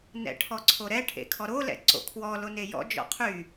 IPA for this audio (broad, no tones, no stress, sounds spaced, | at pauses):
n ɛ̰ ʈʰ ɔ ǀʰ o ɾ ɛ ʈʰ ḛ kʰ ɔ ɾ o l ɛ̰ ǀ o̰ kʰ w ɔ l o n e j ɔ̰ d͡ʒ ɔ̰ qʰ y